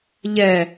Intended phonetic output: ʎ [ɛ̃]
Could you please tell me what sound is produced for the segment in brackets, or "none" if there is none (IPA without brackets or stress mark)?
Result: ɛ